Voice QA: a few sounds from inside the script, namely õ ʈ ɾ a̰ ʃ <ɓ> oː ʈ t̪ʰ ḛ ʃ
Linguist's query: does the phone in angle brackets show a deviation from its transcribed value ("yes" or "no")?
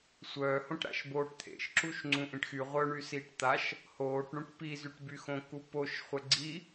yes